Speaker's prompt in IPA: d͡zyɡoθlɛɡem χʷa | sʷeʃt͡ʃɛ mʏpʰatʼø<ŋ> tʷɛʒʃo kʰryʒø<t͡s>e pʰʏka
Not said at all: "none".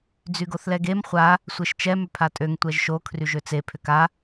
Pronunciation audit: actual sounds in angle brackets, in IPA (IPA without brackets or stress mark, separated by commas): ŋ, t͡s